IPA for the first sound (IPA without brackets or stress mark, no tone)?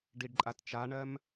ɖ